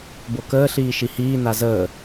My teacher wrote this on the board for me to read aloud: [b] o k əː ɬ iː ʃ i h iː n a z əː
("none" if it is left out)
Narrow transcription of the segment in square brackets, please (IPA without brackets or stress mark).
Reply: b